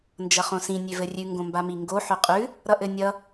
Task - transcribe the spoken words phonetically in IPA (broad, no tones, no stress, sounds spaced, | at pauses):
n d͡ʒ ʌ χ õ s ĩ nʲ ø v ɘ rʲ ʉ ŋ ɡ õ m b a m i ŋ ɡ o ħ ø qʼ ʉ | ɾ ʌ ʔ ɘ nʲ ʌ